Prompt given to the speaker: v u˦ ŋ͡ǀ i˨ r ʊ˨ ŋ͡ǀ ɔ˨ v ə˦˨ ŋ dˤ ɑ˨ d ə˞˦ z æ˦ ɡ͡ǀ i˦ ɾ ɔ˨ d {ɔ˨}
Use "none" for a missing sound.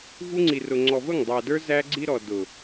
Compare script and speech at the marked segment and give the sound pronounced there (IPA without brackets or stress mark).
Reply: ʊ˨